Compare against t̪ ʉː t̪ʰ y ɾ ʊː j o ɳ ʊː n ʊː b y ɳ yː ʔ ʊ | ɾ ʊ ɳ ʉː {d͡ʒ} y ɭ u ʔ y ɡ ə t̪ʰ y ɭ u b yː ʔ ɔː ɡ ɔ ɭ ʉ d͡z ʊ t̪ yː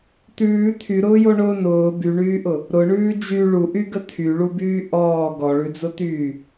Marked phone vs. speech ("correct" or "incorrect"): correct